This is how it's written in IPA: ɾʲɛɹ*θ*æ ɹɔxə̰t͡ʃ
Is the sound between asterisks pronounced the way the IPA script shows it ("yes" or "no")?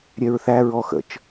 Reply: yes